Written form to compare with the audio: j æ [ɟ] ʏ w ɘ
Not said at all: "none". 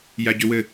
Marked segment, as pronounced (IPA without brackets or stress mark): ɟ